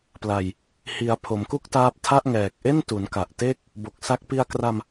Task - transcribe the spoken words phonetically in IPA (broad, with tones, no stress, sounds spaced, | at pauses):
p l a˨˩ j | h i˩˦ a̯ pʰ o˩˦ m k u˥˩ k̚ t aː˦˥ p̚ tʰ a˥˩ ʔ ŋ ɛː˨˩ k̚ ʔ e˥˩ n t u˩˦ n k a˨˩ ʔ t e˥˩ k̚ | b o˨˩ k̚ s a˦˥ k̚ p i˧ a̯ k r a˧ m